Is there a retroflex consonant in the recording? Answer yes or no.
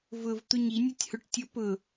yes